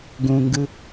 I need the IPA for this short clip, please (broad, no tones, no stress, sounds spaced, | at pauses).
ɡ ũ ŋ ɡ ɯ